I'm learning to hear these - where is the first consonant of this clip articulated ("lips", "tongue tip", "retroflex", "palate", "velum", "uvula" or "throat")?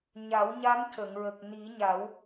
palate